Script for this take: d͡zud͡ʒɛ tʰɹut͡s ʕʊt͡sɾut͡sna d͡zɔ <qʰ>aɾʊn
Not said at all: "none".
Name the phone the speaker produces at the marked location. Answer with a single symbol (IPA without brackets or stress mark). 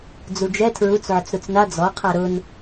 qʰ